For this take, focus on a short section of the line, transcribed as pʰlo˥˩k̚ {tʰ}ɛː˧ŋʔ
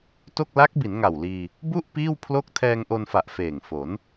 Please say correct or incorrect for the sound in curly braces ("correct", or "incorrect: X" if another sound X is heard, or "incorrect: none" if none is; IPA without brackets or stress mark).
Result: correct